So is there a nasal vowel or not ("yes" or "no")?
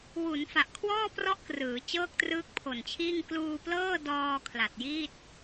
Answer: no